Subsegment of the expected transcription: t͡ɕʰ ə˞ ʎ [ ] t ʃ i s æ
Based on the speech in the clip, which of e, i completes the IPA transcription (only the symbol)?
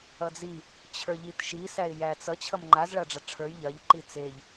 i